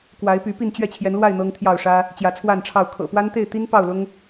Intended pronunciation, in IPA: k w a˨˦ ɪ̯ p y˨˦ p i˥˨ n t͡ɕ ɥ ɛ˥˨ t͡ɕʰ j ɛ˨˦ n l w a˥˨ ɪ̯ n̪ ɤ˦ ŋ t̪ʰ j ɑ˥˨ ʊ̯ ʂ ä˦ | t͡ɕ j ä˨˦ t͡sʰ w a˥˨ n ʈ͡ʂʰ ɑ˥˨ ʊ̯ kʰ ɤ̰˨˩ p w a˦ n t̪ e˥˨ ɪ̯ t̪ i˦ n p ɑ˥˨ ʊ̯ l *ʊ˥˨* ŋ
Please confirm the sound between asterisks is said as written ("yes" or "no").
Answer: no